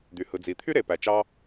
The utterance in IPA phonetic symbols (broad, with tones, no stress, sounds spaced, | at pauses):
d̪ y˩ h ɯ˩ d͡z i˩ t̪ʰ y˥ ɾ e˩ p æ˩ t͡ʃ ɑ˧